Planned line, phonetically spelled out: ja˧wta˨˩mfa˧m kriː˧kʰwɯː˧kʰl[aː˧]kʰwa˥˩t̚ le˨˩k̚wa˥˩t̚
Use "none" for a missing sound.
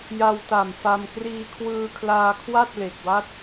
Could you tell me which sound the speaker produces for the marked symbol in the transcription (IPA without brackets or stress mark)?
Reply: aː˧